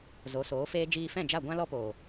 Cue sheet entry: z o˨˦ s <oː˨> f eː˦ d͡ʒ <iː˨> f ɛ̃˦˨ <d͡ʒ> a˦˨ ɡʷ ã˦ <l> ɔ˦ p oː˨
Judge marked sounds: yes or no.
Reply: no, no, yes, yes

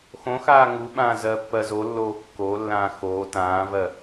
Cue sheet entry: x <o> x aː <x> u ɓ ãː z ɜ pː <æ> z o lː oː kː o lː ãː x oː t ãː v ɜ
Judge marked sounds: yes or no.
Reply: no, no, no

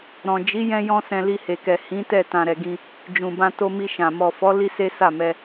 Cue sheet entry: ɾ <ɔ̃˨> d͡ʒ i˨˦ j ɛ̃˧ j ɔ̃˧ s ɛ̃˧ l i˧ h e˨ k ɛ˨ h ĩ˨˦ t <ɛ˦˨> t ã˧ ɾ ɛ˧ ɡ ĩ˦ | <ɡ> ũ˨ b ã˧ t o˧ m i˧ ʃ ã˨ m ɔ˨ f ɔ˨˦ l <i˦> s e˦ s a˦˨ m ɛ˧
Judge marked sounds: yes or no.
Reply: yes, yes, no, yes

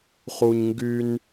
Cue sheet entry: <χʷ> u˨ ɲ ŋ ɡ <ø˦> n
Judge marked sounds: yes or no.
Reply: no, no

